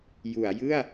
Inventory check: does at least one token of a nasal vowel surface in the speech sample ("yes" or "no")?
no